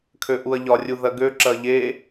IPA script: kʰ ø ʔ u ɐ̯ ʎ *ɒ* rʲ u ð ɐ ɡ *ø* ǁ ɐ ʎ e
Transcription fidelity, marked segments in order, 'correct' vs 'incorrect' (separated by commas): correct, correct